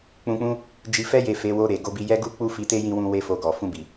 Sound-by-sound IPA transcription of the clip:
k͡p ũ˧ k͡p ũ˦ | d͡ʒ i˧ f ɛ˦ j e˦˨ f e˨˦ w o˧ ɾ e˨ ɡ o˧ b i˧ j ɛ˦ ɡ u˦ k͡p u˦ f i˧ t e˦ j ĩ˧ w ũ˧ w e˦ f o˧ ɡ ɔ˨ f ũ˧ b i˨

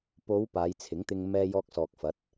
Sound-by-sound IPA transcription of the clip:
p o˨˧ w p aː˨˧ j t͡sʰ ɪ˨˥ ŋ t̪ ɪ˧ ŋ m ɛː˧ j ɔː˧ k̚ s ɔː˨ k̚ f ɐ˨˥ t̚

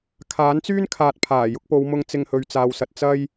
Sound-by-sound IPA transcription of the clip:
kʰ aː˨˥ n t͡s yː˥ n kʰ aː˨ t̚ pʰ aː˨˩ j ʊ˧ k̚ p o˨˧ w m ʊ˧ ŋ t͡s ɪ˧ ŋ h ɵ˨ ɥ t͡s aː˨ w s ɐ˨ t̚ t͡s ɐ˥ j

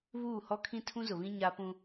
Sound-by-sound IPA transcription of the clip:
β uː˦˨ h ɔ˦ kʰ ĩ˦ tʰ ũ˦ z ʊ˨ β ĩ˦ ɲ a˦ p ũ˦

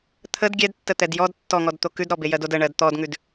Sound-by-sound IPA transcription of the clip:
t̪ʰ ə d ɡʲ ɛ d tː ə t̪ ɛ d j ɔ d tː ɔ ŋ ɔ d t̪ o k ʉ d ɾ ɔ b e j ɜ d o d ə ɳ ɜ d t̪ ɔ d ŋ ʉ d

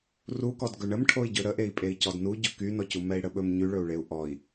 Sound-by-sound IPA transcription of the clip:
r u k ɔ d ɡ ɵ ɳ ə m ʈʰ o i̯ ɟ ɵ ɾ ə ʔ e i̯ pʼ e i̯ c ɔ d n u ɟ ɵ k y n ɔ c u m ɛ i̯ ɽ ə ɓ ɵ m ɲ y ɭ ɵ u̯ ɭ e u̯ ʔ ɔ i̯

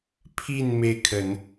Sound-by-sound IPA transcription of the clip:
pʰ i˥˧ n m e˥˩ ɪ̯ kʰ ə˨˩˦ n

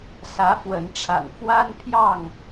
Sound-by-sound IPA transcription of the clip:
s ä˨˦ f w ə˨˦ n ʈ͡ʂʰ a̰˨˩ n f w a˦ n pʰ j ɑ˥˨ ŋ

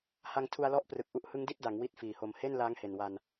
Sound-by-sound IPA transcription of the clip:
h a˧ ŋ tʰ u˧ a̯ l ɔ˦˥ ʔ p r ɯ˨˩ k̚ ʔ u˦˥ ʔ h ɯ˦˥ ŋ d i˥˩ t̚ d a˩˦ ŋ w i˦˥ t̚ f iː˨˩ h o˧ m h e˥˩ n l aː˦˥ ŋ h e˨˩ n w a˧ n

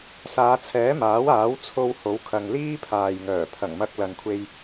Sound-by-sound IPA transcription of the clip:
s aː˨˧ t͡sʰ ɛː˨˥ m aː˨˥ w aː˨˥ w t͡sʰ o˧ w h o˨˥ w kʰ ɐ˨ ŋ l iː˥ pʰ aː˨ j ŋ œː˨˩ pʰ ɐ˨˩ ŋ m ɐ˧ k̚ l ɐ˨ n kʷʰ e˧ j

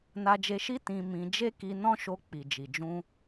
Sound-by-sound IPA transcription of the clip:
n a˧ d͡ʒ e˧ ʃ i˦ t ĩ˧ m ĩ˧ d͡ʒ e˦ k i˧ n ɔ̃˦ ʃ o˧ k͡p i˨ d͡ʒ i˨ d͡ʒ ũ˧

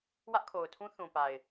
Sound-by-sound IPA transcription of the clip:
w ä˦ ʔ kʰ o˨ ʊ̯ tʰ ũ˦ θ ũ˨ p a˨ ɪ̯

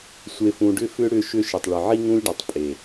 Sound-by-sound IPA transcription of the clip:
sʷ e˨ f ũ˨ ɖ ʏ˧ f ʏ˧ ɽ ʏ˧ ʃ ʏ˧ ʃ ɪ˨ tˤ ɭ ʏ˨ ʕ i˧ ŋ ũ˧ lʲ ɖ ɔ˨ tˤ pʼ e˨

